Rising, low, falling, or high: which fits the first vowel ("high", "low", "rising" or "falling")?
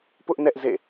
high